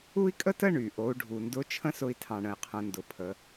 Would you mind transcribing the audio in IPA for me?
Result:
u˥ i̯ kʼ ə˥ t ə˥ ɳ y˩ ʔ o˩˧ u̯ ɖʱ u˩ n d ʊ˧˥ t͡ʃʰ ə̃˥ s ʊ˧ i̯ tʰ ɑ̃˩ ɳ ə̃˩ i̯ qʰ ə̃˩˧ n d ʊ˩˧ pʰ ə˩˧

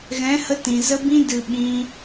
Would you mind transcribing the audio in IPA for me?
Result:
ɣ ɛ̃˨˦ h ə˧ t ĩ˨ z ə˧ b ĩ˧ d ɨ˨ ɓ ĩ˧

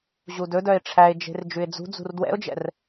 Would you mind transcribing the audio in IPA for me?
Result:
ʑ u d ɵ d œ ɪ̯ ʈ͡ʂʰ æ ɪ̯ d͡ʒ e̤ r d͡ʒ ʉ ɪ̯ d͡z ṳ d͡z ṳ r d w ɛ̰ ʊ̯ d͡ʒ ɛ̰ r

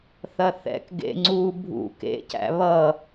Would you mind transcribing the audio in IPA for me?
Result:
θ ɐ θ ɛ̰ k ɡ ḛ ŋ͡ǀ u bʱ ṵ k ḛ c æ̰ β ʌ

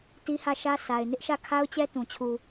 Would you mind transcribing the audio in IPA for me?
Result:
t i˦ h ä˦˨ ʃ ä˦ s a˨ ɪ̯ n ɪ˦ ʔ ʃ ä˦˨ kʰ a˦ ʊ̯ t͡ɕ ɛ˦ t ũ˨ t͡ɕʰ u˨

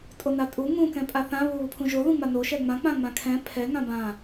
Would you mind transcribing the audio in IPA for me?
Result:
tʼ o n a tʼ u ŋ ũ k ɛ̃ pʼ a θ ã β u β u pʰ ũ ʒ o ð ũ ŋ͡m a n o ʃ ɛ ŋ͡m ã k͡p ã ŋ͡m ã kʰ ɛ̃ pʰ ɛ ŋ ã b ã

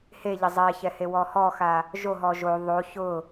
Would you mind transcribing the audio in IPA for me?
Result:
h e ʎ ɪ zˤ ɛ ç ɛ h e w ɔ h ɔ x a | ʒ o ɦ ɔ ʒ o ðˤ o ç ʊ

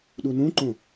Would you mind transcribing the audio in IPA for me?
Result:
ɗ u n ũ ǃ õ

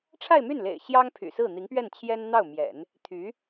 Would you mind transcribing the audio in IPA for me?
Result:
ʈ͡ʂʰ a˥˧ ɪ̯ m y˥˩ n l ḛ˨˩ ɪ̯ ɕ j ɑ˥ ŋ pʰ y̰˨˩ s ɹ̩˥˩ n̪ i˧˥ ŋ p ɥ ɛ˥˩ n t͡ɕʰ j ɛ˥ n n̪ ɑ˥˩ ʊ̯ m j ɛ̰˨˩˦ n | t̪ʰ y˧˥

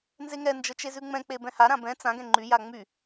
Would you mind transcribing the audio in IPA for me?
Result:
n z e ŋ ɛ n d͡ʒ ə t͡ʃ e z ʉ ŋ͡m ɛ̃ k͡p e b ɛ̃ h a ɾ ã b ɛ̃ t͡s ã ɡ ɛ̃ ŋ͡ǃ y j a ŋ͡m y

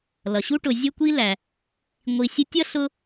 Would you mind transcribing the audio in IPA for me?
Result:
l ʌ˩ ɕ u˥ ʈ ʊ˨ zʲ ə˥ kʷ i˥ l æ˩ | ŋʷ i˨ sʲ ʊ˦ tʲ ʌ˥ ɬ ʊ˦

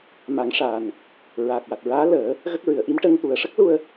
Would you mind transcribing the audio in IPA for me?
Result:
m a˨˩˦ ŋ ʂ aː˨˩ n | ɹ a˨˩ k̚ w a˨˩ t̚ ɹ aː˧˥ l əː˨˩˦ | ɣ ə˦˥ k̚ ɹ ɨ˨˩˨ ə̯ ʔ i˧˥ m ʈ ə˧ ŋ t̪ u˨˩˨ ə̯ ʂ ə˦˥ k̚ l u˧ ə̯

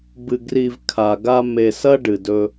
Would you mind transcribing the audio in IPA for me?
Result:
b ɨ˨ ɡ r i˨ v kʰ a˨ ɡ a˧ m e˨ s ɐ˧ ɖ ɨ˨ d ɵ˧

